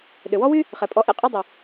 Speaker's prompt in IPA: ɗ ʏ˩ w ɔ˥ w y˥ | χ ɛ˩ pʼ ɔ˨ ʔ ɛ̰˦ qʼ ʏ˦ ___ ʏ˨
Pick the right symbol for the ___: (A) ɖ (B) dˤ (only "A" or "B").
B